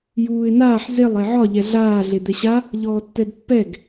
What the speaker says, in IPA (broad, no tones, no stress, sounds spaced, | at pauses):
j uː ɪ̯ n aː ħ z e lˠ e ʕ ɒ ʎ ɛ ɮ aː ɮ e d̪ ɛ ɕ a | ʎ ɔː tː ɛ d pː ɛ ɡ